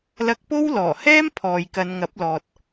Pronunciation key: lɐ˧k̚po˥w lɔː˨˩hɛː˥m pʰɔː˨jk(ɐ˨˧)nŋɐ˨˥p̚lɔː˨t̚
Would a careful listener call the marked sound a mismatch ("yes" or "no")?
no